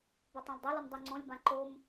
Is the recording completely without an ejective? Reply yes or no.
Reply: yes